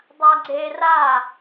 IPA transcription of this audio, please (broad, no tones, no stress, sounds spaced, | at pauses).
dˤ a ɡ͡ǀ e r a